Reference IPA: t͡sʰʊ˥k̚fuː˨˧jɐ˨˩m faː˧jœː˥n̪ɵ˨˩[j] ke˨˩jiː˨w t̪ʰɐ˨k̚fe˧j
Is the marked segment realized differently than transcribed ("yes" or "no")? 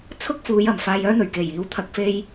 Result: yes